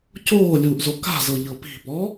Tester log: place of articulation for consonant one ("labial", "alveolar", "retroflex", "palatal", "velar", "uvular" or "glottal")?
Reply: palatal